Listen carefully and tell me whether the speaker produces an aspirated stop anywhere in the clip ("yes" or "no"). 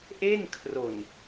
yes